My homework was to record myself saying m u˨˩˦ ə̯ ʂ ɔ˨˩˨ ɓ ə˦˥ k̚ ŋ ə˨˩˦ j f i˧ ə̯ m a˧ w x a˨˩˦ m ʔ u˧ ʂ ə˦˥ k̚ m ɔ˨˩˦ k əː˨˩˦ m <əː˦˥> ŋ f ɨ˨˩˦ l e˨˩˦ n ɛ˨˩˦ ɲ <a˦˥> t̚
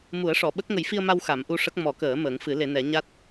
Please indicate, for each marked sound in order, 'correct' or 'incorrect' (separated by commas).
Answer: incorrect, correct